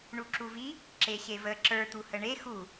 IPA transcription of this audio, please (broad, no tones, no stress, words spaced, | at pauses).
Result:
ɳuǁuvi | ǁeɕevə ǁə˞ t̪uhəɳe xu